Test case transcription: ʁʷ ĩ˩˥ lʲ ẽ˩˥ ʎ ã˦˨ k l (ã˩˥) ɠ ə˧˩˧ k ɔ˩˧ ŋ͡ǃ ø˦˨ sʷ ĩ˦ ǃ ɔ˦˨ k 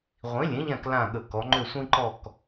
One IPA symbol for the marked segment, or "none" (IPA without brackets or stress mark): ã˦˨